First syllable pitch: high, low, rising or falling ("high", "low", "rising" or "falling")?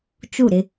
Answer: falling